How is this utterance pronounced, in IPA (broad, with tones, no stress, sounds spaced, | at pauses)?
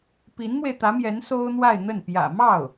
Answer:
p i˧˥ n m w e˧ ɪ̯ t̪ ä˧˥ m j ɛ˧˥ n s o˥ ʊ̯ n̪ w a˥˧ ɪ̯ n̪ ə˥˩ n p j ä̰˨˩ m ɑ˥˩ ʊ̯